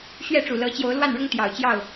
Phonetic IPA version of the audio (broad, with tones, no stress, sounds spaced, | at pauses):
ɕ ɥ ɛ˥˨ ʈ͡ʂ u˨˩ l ɤ˨˦ t͡ɕ j o˨˦ ʊ̯ l w a˥˨ n ɻ ʊ˦ ŋ t̪ j ɑ˨˩ ʊ̯ t͡ɕ j ɑ˥˨ ʊ̯